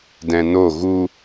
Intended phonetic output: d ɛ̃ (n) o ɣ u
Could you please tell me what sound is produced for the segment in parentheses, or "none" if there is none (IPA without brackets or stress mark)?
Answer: n